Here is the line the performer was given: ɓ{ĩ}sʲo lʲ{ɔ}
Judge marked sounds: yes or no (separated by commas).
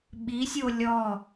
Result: no, yes